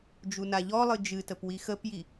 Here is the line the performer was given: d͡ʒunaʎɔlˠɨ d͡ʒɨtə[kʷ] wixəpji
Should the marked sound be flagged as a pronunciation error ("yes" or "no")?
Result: yes